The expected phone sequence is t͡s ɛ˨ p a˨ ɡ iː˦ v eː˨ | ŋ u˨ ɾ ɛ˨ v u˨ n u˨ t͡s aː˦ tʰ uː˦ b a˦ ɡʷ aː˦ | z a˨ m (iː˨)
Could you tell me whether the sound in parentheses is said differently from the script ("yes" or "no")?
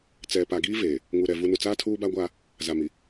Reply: yes